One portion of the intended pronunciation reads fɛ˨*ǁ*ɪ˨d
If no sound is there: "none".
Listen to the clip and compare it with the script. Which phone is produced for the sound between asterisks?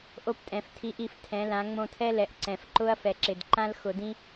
ǁ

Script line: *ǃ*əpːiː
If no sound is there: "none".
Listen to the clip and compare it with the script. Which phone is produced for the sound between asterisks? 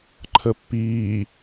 ǃʰ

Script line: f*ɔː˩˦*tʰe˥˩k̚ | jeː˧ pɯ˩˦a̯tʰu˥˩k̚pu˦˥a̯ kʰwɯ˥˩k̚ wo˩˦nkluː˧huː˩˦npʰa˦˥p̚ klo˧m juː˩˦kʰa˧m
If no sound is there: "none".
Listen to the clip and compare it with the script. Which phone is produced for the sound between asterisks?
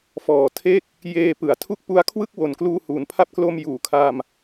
ɔː˨˩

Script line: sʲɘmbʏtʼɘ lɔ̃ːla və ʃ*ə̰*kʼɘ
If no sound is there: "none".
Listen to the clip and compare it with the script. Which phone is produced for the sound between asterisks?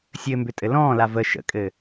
ə̰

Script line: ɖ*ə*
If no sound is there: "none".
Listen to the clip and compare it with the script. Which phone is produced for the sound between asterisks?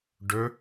ɵ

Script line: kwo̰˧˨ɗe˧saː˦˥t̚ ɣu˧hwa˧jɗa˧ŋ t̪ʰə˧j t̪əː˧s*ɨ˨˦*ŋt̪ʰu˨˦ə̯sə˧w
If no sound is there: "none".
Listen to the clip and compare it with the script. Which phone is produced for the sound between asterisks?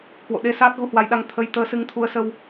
ɨ˨˦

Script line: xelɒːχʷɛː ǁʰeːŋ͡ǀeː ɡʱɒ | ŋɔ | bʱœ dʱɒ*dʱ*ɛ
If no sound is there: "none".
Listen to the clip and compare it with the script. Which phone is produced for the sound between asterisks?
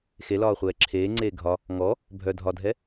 dʱ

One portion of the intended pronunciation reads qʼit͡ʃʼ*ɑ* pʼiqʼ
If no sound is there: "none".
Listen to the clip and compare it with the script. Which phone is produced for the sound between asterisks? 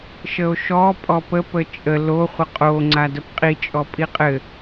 ɔ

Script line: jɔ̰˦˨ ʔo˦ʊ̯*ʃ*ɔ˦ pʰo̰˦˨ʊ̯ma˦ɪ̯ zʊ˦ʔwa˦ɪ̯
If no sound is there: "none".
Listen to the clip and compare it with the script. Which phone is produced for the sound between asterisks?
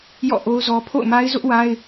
z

